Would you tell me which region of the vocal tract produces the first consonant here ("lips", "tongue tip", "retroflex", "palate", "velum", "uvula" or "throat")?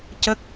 palate